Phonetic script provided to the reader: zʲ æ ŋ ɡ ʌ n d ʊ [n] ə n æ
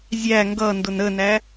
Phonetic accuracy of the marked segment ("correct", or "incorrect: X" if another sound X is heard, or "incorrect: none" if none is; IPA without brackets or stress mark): correct